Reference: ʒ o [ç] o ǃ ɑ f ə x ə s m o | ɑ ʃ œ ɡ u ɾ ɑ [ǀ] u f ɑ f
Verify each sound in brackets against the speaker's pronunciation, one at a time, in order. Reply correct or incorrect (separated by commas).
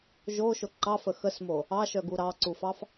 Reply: incorrect, correct